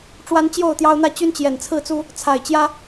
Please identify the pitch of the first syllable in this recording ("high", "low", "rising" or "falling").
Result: high